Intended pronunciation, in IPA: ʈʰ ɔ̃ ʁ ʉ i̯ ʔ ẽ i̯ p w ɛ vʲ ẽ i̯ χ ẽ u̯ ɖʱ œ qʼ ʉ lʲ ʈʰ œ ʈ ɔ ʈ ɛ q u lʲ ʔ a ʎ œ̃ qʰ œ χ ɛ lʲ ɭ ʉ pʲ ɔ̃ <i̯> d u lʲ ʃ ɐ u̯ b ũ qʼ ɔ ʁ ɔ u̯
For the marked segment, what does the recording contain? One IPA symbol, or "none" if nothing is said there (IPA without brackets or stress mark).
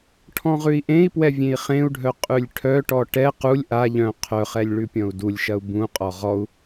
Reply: u̯